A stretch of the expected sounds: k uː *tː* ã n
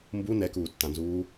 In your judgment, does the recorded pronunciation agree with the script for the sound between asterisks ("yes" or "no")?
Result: yes